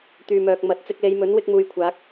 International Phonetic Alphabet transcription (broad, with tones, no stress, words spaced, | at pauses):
t̪yː˨mœː˨k̚ mɐ˨˥t̚ t͡sɪ˧k̚le˨˧jmɵ˨˥n wɪ˥k̚muː˧jkʷʰaː˨˥k̚